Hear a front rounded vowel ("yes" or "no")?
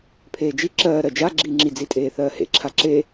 no